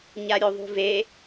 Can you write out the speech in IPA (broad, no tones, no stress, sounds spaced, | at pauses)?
ɲ a ɾʲ o ðˤ ṳ v e